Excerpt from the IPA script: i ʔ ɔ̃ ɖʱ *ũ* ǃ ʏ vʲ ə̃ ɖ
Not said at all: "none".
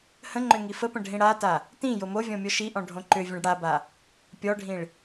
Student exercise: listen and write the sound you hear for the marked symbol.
õ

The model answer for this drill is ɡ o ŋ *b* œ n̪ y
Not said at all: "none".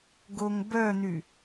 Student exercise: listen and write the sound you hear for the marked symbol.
b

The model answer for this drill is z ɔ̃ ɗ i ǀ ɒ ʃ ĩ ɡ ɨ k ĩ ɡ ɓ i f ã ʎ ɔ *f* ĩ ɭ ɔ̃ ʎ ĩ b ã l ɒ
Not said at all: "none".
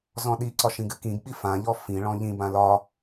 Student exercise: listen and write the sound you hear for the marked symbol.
f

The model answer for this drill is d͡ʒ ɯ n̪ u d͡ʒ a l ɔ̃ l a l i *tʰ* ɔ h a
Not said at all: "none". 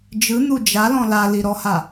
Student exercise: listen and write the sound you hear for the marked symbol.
ɾ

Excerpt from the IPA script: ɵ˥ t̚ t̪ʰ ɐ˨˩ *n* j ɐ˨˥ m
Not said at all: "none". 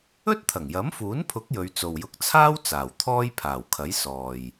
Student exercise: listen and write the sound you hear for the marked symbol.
ŋ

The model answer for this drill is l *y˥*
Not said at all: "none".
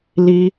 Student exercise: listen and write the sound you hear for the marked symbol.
i˥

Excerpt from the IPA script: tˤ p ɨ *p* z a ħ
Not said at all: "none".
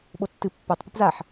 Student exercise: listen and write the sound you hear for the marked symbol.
p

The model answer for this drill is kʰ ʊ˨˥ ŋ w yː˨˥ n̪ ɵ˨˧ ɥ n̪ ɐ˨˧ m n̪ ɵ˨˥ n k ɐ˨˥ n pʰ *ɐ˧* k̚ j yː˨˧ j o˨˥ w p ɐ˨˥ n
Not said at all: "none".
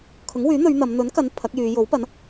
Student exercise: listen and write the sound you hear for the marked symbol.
ɐ˨˥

